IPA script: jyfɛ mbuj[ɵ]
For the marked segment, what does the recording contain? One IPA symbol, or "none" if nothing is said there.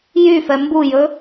ɵ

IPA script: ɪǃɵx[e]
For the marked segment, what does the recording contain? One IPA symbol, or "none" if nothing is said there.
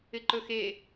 e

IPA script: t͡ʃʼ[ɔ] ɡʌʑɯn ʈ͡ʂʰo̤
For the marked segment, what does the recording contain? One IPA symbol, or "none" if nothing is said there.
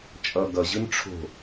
ʌ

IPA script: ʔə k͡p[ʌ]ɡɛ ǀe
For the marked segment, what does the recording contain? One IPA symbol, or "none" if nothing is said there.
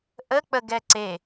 ə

